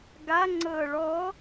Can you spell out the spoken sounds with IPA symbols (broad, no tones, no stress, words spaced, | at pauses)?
ɡa ŋ͡ǀɤːɭɔ